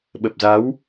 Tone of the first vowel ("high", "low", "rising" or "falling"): low